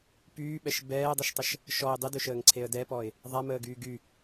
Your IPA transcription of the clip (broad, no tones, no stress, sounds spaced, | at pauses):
p yː ɓ ɛ ʃ b ɛː dˤ ɛ ʃ tˤ ə ʃ | ʃ ɔ ɪ̯ dˤ e d ø ʃ əː ŋ ǀʰ e ə̯ d ɛ p ɔ ɪ̯ | ðˤ a m əː ɡ yː ɡ y